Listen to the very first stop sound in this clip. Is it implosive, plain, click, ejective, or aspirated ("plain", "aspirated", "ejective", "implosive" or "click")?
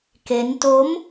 plain